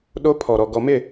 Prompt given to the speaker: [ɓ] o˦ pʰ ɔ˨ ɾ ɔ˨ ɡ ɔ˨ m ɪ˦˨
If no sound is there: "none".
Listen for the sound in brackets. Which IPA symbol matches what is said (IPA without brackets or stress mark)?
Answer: ɗ